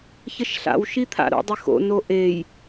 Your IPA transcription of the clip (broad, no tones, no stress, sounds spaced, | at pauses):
ç ə ʃ ɬ a̰ w ʃ i t̪ʰ a̰ ɾ o̰ dˤ ɪ x o̰ n o ʔ e j